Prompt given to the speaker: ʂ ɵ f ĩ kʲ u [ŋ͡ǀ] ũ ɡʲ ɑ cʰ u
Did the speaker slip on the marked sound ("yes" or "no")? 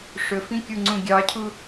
no